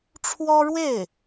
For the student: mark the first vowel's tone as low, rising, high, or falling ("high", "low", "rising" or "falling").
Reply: high